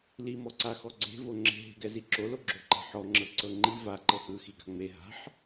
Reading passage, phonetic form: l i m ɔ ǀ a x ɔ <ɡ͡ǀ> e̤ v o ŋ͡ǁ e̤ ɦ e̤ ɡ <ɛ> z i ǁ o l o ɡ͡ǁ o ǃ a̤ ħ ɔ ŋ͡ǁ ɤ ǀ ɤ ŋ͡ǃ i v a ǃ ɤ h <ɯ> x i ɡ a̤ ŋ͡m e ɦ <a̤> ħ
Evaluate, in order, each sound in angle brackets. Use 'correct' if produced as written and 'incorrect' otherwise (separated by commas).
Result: correct, correct, correct, correct